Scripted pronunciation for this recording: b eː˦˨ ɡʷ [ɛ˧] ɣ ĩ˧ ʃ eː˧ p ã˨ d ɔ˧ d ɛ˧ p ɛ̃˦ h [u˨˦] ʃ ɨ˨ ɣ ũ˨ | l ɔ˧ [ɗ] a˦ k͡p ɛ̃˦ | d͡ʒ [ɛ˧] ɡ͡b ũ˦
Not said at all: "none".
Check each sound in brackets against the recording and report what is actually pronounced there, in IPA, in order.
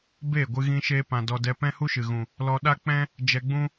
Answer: ɨ˧, u˦, ɗ, ɛ˧

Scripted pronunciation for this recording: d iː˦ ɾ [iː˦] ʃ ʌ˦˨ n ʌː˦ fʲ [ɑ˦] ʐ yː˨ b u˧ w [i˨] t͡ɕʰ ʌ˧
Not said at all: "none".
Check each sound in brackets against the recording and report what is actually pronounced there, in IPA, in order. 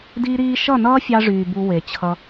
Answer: iː˦, ɑ˧, e˨

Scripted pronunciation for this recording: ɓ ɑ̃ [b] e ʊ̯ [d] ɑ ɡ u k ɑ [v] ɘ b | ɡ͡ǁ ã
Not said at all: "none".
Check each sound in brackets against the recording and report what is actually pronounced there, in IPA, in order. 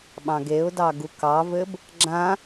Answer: ɡ, d, v

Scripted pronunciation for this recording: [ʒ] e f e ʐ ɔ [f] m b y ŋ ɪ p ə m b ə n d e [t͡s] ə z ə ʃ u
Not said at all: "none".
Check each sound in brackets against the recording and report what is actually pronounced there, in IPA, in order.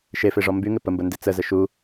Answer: ʃ, none, t͡s

